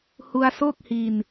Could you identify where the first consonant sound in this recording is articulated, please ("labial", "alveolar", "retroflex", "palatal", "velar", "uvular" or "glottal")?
glottal